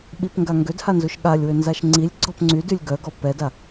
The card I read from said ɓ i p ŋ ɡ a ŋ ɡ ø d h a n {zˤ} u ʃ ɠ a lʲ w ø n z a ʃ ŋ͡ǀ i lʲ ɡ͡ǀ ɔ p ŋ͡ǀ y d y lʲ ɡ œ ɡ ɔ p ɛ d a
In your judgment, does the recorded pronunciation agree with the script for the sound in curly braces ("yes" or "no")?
no